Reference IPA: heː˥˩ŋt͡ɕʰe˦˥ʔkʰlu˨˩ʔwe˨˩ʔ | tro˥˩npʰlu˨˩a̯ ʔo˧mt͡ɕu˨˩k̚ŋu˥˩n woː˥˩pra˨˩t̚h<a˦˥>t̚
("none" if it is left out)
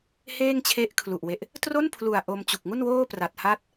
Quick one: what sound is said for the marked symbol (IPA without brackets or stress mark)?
a˦˥